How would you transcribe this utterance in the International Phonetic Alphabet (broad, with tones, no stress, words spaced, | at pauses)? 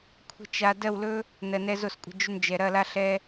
kʷʰə̤˧ t͡ʃa˨ dɜ˦˨wlɵ˦ | nɜ˨nɛ˧zo˦˨skʷʼə̤˦˨ d͡ʒʏ˧nd͡ʒɛ˨ ɾɐ˦˨la˦ ɬɛ˦